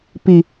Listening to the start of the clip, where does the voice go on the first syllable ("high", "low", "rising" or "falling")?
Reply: low